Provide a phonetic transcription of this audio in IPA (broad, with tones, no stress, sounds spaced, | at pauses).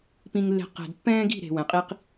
p ĩ˧ ŋ lː e̤˧ q ɛ̤˨ d pː ɛ̃ː˦ ɡ i̤˦˨ ɾ e̤˨ w ɛ̃˨ qʼ i˦ q